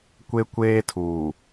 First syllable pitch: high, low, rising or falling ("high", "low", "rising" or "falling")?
high